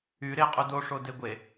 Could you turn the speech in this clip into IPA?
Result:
y ɾ e qʼ u d o ʂ o d e ɡʷ e

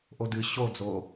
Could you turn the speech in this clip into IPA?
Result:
ʔ o d ɨ ɕ o d͡z o

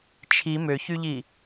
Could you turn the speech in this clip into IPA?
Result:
t͡ʃʰ i m ø ç y ʎ i

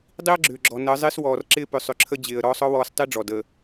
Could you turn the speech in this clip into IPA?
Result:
dˤ i˦ ə̯ ɡ͡ǁ ʏː˨ ɡ͡ǁ ɔ˨ n əː˨˦ zˤ ɪː˦ s w ɔː˨ r ǁ ɪː˦ p ʏ˨ sˤ ʏ˨ ǁʰ ə˦ d͡ʑ ɪː˨ ə̯ ɾ ɔː˦ sˤ ɔ˦ w ɔː˨ s tˤ i˦ ɖ͡ʐ ɔ˨ d ə˨

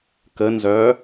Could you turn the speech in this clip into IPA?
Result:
k ə n z œː

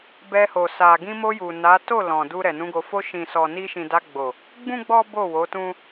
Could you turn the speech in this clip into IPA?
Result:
b ɛ˧ h o˨ s a˨ ɡ ĩ˧ m o˧ j u˨ n a˨˦ t o˦˨ l ɔ̃˨ d u˧ ɾ ɛ˨ n ũ˨˦ ɡ o˧ f o˧ ʃ ĩ˨ s ɔ˨ n i˧ ʃ ĩ˨ d a˧ ɡ͡b o˨ | ɡ͡b ũ˦ ɡ͡b ɔ˦ b o˦˨ w o˨˦ t ũ˦

